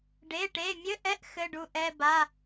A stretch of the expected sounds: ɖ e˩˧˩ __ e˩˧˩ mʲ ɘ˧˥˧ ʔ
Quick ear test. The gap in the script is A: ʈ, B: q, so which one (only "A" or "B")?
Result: A